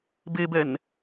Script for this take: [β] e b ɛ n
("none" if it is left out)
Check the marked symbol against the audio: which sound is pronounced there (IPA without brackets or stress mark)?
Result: b